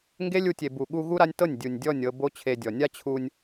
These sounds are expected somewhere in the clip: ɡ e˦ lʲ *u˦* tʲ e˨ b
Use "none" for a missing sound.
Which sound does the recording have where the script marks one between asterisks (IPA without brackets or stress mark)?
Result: u˧